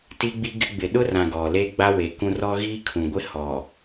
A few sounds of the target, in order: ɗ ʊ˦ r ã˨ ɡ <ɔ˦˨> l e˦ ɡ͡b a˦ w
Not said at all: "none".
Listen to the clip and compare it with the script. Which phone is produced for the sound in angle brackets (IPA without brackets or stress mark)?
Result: ɔ˨